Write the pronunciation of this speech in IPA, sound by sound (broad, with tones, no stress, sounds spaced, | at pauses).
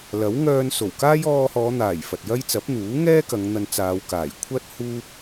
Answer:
l ɐ˨˥ w ŋ œː˧ n s o˨˩ w k aː˥ j ɔː˧ h ɔː˨˧ n̪ aː˨˩ j f ɐ˨ t̚ j ɐ˥ j t͡s ɐ˨˥ p̚ n̪ uː˨˥ ŋ ɛː˥ k ɐ˨˧ ŋ n̪ ɐ˧ n t͡s aː˨˧ w k aː˨˩ j kʷʰ ɐ˥ t̚ h uː˥ p̚